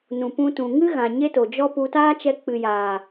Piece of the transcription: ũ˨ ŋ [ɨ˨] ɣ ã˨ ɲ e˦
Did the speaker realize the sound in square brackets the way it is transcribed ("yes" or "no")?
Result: no